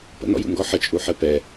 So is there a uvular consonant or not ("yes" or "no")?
no